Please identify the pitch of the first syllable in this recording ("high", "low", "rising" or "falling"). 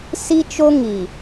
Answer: high